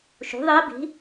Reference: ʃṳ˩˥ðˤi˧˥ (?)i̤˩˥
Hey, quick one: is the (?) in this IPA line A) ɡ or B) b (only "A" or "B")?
B